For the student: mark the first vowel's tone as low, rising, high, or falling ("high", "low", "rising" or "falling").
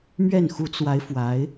falling